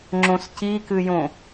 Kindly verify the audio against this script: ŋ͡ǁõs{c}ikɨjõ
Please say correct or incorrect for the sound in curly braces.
correct